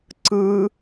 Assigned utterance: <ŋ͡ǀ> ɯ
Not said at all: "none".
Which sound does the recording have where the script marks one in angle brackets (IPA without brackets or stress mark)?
ǀ